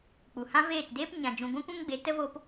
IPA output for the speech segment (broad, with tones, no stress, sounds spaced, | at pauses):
k͡p u˨ h ã˦ v eː˦˨ t d eː˦ p ɲ ã˨ d͡ʒ ũ˨ ɡʷ ɛ̃˦ kʷ ɛ̃˦ ŋ ɡ͡b e˨˦ t ə˦ v o˦ p